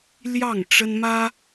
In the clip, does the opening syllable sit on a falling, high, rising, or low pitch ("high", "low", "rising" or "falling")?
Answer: falling